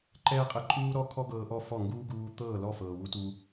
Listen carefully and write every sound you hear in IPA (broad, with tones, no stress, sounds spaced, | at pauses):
ǃ ɛː˦ qʼ ɛ˧ ǃʼ uː˦ ɾ ɔ˦ kʰ ɔ˦ ɡ ɤː˧ ʔ ɔ˦˨ f ɔ˦˨ ŋ ɡ uː˦ ɡ uː˧ t̪ ɤː˦˨ l ɔ˦˨ f ɤː˨ w u˧ t u˧